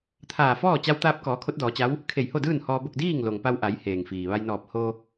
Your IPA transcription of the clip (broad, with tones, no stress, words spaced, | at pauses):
t̪ʰaː˧˩ fɔː˥˨ t͡ɕa˧wt̪aː˧p̚kɔː˩˧ kʰo˧˥t̚dɔː˩˧t͡ɕa˧˥w | kʰe˧˩jho˥˨dɯː˥˨n hɔː˧bo˥˨k̚ diː˥˨ŋlo˩ŋpa˧wʔa˩˧j heː˩ŋfiː˩ ʋa˧jnɔː˧˩p̚ ho˧